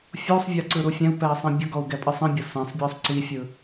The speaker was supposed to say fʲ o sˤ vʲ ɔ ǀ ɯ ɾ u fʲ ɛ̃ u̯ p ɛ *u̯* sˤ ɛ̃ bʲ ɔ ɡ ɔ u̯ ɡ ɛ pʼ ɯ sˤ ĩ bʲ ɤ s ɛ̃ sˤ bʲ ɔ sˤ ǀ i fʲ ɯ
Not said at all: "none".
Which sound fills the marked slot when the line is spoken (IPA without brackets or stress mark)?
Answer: i̯